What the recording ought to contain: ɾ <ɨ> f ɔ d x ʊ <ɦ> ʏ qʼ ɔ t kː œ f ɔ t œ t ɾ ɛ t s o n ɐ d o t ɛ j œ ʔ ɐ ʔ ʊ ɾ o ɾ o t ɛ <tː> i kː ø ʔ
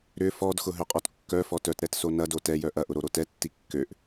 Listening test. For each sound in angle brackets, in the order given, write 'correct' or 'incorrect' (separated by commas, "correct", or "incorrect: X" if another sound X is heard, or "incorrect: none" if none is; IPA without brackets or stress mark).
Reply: incorrect: ʏ, correct, correct